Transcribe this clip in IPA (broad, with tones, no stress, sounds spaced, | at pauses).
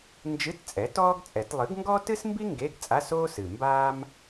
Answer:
n d͡ʒ ɨ˧˥˧ t t͡sʼ ɛ˩˥ t ɔː˥ ɡ t͡sʼ ɛ˨˩˦ t lˠ ɨ˩˥ ɡ ŋ ɡ ɔ˥ t ɨ˥ s m b i˥ ŋ ɡ e˧˥˧ ɡ t͡sʼ a˧˥˧ s oː˥ s ɨ˨˩ m b aː˥ m